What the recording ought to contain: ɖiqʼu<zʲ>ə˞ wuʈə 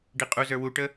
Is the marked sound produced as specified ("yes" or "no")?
no